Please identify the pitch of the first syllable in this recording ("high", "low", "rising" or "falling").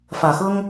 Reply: low